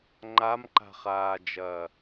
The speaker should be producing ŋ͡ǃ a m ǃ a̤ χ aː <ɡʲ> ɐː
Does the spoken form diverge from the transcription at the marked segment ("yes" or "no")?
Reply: yes